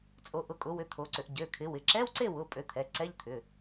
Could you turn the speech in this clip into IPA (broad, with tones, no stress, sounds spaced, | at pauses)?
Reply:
t͡sʼ o˨˦ ʔ ʊ˨˦ kʼ ʊ˨˦ w ʏ˨˦ t̪ʰ o˨˦ ǀ ʏ˨˦ ʔ ɟ ø˩˧˩ kʰ ɪ˨˦ w ɪ˩˧˩ ǁ ɛ˧˥˧ w ǀ e˥˨ w ʊ˩˧˩ pʼ ø˨˦ t̪ʰ ɛ˩˧˩ ǀ ɛ˧˥˧ ʎ t̪ʰ ʏ˩˧˩